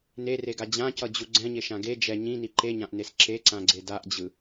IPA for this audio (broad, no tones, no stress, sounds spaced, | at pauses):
n e r e ɡ a d͡ʑ ã c ʌ d͡ʑ u ɡ͡ǀ ɛ̃ ɲ e ʃ ã ɡ e d͡ʒ ɛ ɲ ĩ n i ǃ e ɲ ã ʔ n e s ǁ e ǀ ã ɡ͡ǀ e d a ʔ d͡ʑ ɯ